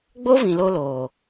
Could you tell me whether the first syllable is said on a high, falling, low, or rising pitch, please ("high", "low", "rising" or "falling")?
high